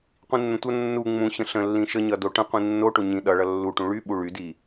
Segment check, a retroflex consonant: present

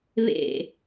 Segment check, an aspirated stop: absent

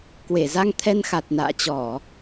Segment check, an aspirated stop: present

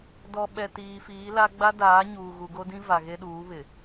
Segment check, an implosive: present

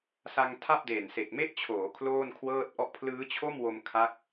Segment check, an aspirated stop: present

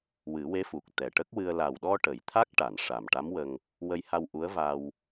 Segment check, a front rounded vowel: absent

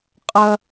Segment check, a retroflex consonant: absent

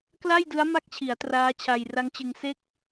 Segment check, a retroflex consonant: absent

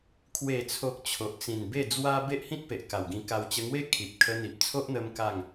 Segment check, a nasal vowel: present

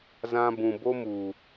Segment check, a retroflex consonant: absent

